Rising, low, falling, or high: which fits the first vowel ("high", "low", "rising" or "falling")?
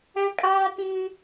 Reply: high